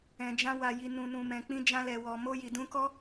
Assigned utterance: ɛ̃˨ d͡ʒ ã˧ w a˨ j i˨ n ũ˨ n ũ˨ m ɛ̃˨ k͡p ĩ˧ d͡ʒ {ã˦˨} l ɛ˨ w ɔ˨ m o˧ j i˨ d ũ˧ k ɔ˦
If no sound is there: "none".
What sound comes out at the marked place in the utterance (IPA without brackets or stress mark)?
ã˧